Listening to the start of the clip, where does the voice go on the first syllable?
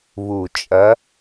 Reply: low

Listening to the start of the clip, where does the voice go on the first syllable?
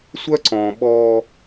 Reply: high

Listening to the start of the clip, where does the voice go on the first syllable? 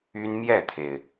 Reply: high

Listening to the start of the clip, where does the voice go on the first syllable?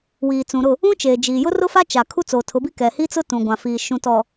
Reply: low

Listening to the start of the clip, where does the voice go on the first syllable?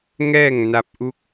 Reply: falling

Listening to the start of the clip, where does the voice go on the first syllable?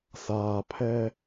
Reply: low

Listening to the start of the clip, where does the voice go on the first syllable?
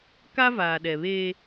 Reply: high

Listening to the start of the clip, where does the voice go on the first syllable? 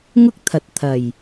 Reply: high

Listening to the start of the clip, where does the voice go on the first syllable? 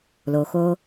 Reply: low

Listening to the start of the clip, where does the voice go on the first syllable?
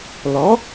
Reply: rising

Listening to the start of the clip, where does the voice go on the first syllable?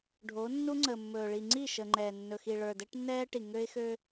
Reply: rising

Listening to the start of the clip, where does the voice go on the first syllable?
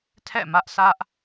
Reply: falling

